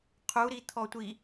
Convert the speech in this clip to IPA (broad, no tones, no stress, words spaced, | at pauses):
qʰu ɾit̪ʰɔtʷi